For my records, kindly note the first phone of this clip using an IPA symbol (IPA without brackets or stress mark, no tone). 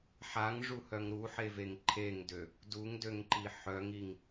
ħ